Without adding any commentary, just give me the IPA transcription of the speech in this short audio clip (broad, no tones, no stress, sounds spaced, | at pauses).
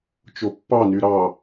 t͡ʃ o pː ɑ n y ɾ ɑ